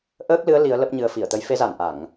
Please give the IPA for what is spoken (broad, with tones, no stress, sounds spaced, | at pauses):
ʔ əː˦˥ k̚ l ɨ˨˦ ə̯ l i˨˦ ə̯ l ə˦˥ p̚ ɲ ɨ˨˦ ə̯ f i˧˩ ə̯ t̪ ə˨˦ j f e˨˦ z a˧˩ n ʔ a˧˩˨ ŋ